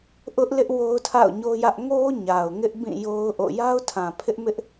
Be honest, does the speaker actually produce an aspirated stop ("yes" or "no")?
yes